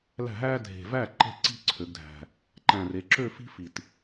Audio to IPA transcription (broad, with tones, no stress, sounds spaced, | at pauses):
l æ̤˥˩ ɦ æː˥ dʱ e̤˨˩ v æ˥˩ ǃ e̤˥˧ ǀ i̤˥ ǀʰ ø˩˧ ɡ dʱ æ̤˨˩ | ǃ æ̃˨˩ r e˩˧ ǁ ø˥˧ f i̤˥ f i˨˩ t